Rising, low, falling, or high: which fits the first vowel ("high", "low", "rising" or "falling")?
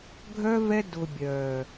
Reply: high